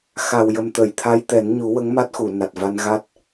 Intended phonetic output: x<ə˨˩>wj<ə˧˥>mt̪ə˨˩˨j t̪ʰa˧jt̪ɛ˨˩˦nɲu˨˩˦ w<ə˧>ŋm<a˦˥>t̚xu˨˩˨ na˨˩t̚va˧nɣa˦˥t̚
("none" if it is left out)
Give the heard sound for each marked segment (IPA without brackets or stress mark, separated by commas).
a˨˩, ə˨˩, ə˧˥, a˦˥